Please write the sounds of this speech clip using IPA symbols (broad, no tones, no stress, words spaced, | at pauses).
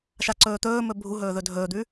ʃaǀɵːt̪ɵːmɵ bʱuɦɵː ðɵdʱɵːd̪ʉ